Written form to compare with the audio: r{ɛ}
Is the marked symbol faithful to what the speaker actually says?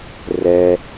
yes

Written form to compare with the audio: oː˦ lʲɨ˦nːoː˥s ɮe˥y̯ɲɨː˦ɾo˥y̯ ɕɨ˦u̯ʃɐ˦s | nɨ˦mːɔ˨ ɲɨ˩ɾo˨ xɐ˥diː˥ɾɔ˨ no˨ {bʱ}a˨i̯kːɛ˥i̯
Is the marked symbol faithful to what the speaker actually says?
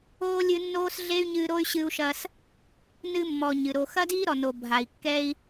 yes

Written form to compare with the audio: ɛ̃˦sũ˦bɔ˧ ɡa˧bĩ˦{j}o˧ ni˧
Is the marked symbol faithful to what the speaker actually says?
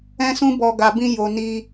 yes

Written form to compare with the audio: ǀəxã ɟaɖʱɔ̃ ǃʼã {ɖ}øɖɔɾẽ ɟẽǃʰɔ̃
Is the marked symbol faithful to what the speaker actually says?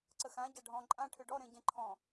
no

